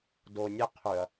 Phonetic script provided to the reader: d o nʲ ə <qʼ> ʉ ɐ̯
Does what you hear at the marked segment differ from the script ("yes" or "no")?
yes